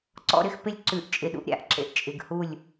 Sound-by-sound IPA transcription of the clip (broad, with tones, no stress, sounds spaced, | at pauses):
ǀ ɔ̰˦ ɾ ɪ˦ x p ɪ˦ lʲ ǀ ʉ˨˦ ʔ t͡ʃʼ ɪ˨ ɗ ṵ˦ ʔ ɾʲ a̰˦ ʔ ǁ ḛ˨ ʔ t͡ʃʼ ɪ˨ ɡ h u˦˨ lʲ